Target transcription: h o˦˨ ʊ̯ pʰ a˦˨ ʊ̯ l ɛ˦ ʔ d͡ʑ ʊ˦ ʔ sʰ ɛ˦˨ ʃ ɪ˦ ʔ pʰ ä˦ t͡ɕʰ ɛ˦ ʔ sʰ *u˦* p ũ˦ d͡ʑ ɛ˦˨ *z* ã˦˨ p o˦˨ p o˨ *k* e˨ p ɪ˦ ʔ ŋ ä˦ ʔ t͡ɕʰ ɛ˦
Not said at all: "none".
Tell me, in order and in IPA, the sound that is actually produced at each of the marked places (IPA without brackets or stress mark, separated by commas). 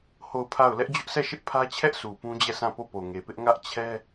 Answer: u˨, s, ŋ